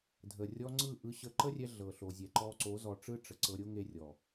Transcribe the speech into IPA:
dʱ ə˨ rʲ ɔ˧ ŋ͡ǀ ɯ˦˨ ʔ ɯ˧ ɕ ə˧ ǃ ə˦ rʲ ɛ˧ ɮ ɤ˨ ɬ o˨ zʲ ɛ˨ ǃ ɔ˧ ǀ o˨˦ z ɔ˧ ʈ͡ʂ ɯ˦ ʈ͡ʂ ə˨ ǀ ɤ˧ ɾʲ o˦ ŋ e˧ rʲ ɔ˨

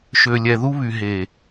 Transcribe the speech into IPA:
ʃ ø˨ lʲ ɛ˨ ð u˦ β y˨ ɦ e˨

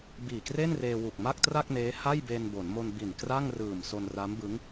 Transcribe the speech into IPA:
b iː˨˩ k r e˥˩ n r eː˧ w u˨˩ k̚ m a˥˩ k̚ t r a˥˩ k̚ n eː˦˥ h a˥˩ j b eː˧ n b o˩˦ n m o˧ n b i˨˩ n k r a˥˩ ŋ r ɯː˨˩ m s o˧ n r a˦˥ m b ɯ˦˥ ŋ

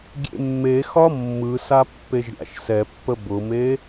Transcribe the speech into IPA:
ɡʲ ḛ mː e x ɒ mː ɯ s a pː e ʒ ɾʲ a̰ ʃ s ɛ pː ə b ʊ m e

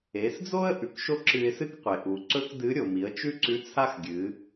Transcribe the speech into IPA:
e˩˧ s d͡z o˥ ə̯ ʔ ʉ˩ k ʃ o˥ ǁ ɨ˧ ɪ̯ s ɨ˥ k qʷ e˩ ʔ u˩ ǀ ɵ˥ k d ɨ˧˥ ɾʲ o˩ m i˩˧ ə̯ t͡ʃ ʉ˥ ǀ ʉ˧˥ t͡sʰ a˥ x ɡʲ ɨ˩˧

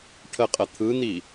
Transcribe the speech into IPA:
ʈʰ ə qʼ ə t̪ʰ ɯ n̪ i

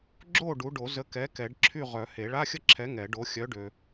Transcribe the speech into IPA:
ɡ͡ǁ o˥˨ ɖ u˨˥ ɖ o˨˩˦ z ə˨˥ k ɛ˨˥ k ɛ˨˩˦ ɖ ǁʰ y˥˨ ʁ œ˨˩˦ h e˨˩˦ ɭ a˧˥˧ xʲ ə˥˨ ǁʰ ɛ˨˥ ŋ ɛ˨˩˦ ɖ o˨˥ xʲ œ˨˥ ɖ ø˨

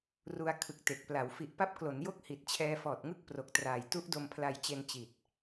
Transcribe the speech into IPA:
r u˧ a̯ kʰ ɯ˨˩ k̚ t e˨˩ k̚ p l a˩˦ w f i˨˩ ʔ p a˦˥ p̚ k l o˩˦ n j o˦˥ k̚ h i˨˩ t̚ t͡ɕʰ ɛː˧ f ɔː˨˩ t̚ ŋ ɯ˥˩ k̚ p r o˨˩ k̚ t r aː˨˩ j t u˦˥ ʔ d o˧ m pʰ l a˧ j t͡ɕ e˧ n t͡ɕ i˨˩ t̚

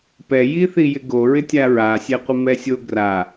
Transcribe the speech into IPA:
p ɛ j i θ i j ɪ ɡ o ɹ ɪ tʲ a ɹ a sʲ ɛ qʷ ɪ m ɛ sʲ o ɡ r a

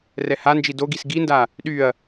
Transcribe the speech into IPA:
r ɛ h a n d͡ʒ i d o ɡ i s ɡ i n d a | ɗ y ɐ̯

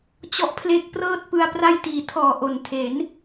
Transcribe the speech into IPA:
t͡ɕ ɔ˦˥ ʔ pʰ l e˦˥ k̚ p r ɤː˥˩ t̚ p ɯ˧ a̯ p r a˥˩ j t iː˨˩ tʰ ɔː˨˩ ʔ o˨˩ n tʰ e˩˦ n

